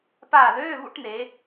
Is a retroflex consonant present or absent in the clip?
present